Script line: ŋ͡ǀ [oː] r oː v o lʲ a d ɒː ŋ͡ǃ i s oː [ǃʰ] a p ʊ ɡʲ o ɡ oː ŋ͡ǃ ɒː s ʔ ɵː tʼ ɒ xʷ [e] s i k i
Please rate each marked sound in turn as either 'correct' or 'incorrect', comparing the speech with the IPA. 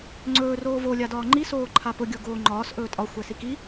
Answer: incorrect: ɵː, correct, incorrect: ɛ

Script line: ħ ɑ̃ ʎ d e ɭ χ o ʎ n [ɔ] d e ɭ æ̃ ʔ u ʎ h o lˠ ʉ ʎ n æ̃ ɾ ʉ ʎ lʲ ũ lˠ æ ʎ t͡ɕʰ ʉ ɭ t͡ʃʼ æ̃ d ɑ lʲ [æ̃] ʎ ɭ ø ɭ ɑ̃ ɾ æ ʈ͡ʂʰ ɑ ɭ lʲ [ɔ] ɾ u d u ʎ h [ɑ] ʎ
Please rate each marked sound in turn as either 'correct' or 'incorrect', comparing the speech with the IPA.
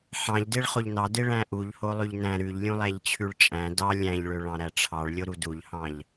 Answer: incorrect: ɑ, correct, incorrect: o, incorrect: ɑ̃

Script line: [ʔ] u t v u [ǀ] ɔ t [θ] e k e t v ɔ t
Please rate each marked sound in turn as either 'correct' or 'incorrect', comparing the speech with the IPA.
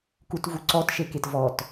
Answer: incorrect: k, correct, incorrect: ʃ

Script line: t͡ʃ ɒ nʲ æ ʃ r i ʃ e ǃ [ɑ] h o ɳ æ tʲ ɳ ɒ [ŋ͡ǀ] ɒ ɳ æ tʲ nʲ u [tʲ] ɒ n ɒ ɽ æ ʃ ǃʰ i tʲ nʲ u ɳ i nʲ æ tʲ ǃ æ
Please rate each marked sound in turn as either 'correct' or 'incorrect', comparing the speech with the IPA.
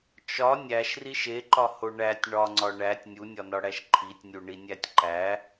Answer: incorrect: ɒ, correct, incorrect: nʲ

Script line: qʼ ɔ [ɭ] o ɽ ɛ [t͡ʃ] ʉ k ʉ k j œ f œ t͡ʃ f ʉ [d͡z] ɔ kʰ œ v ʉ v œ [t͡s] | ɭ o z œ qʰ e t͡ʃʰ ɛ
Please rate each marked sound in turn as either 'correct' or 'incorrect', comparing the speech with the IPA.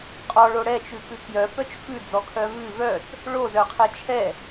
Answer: correct, correct, correct, correct

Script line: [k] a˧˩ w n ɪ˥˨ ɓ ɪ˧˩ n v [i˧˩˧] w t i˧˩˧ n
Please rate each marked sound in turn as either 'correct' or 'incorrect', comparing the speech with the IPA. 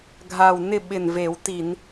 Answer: incorrect: ɡʱ, incorrect: e˧˩˧

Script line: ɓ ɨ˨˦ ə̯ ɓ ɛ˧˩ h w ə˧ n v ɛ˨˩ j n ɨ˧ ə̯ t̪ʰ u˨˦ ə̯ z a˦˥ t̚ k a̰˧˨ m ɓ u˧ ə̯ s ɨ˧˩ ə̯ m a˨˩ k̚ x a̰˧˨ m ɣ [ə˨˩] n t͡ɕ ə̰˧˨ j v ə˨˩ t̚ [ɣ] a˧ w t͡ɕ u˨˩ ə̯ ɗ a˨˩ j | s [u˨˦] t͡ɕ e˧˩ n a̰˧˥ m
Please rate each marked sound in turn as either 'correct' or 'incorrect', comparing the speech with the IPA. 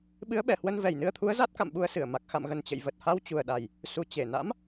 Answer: correct, incorrect: h, incorrect: u˨˩

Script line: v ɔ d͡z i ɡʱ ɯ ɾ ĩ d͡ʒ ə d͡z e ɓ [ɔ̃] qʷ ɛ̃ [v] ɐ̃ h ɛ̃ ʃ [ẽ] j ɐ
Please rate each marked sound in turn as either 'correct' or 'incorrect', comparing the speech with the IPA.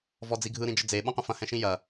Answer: correct, incorrect: f, incorrect: ĩ

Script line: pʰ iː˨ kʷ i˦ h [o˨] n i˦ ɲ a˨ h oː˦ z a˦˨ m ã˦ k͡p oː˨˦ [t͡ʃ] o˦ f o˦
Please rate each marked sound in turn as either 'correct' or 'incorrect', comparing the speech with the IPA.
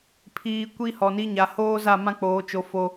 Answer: incorrect: ɔ˨, correct

